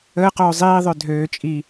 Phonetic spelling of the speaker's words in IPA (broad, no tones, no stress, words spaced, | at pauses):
əːqoː zˤiːðˤø dʱøː t͡ʃʼi